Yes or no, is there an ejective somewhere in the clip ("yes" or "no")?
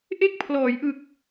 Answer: no